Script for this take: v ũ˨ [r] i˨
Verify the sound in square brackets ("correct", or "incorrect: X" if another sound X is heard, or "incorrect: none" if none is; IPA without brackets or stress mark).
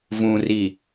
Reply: correct